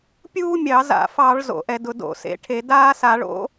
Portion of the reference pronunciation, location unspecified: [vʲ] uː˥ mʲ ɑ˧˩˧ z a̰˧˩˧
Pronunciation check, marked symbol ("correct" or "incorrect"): incorrect